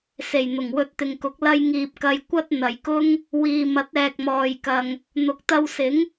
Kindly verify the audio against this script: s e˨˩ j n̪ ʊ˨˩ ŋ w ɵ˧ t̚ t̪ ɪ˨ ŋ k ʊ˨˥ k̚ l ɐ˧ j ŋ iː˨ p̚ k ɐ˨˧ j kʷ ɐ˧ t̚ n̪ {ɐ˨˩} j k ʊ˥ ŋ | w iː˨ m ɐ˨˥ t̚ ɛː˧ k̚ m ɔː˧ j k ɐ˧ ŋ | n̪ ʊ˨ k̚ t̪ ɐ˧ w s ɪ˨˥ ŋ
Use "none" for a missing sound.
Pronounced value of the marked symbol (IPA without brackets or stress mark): ɐ˨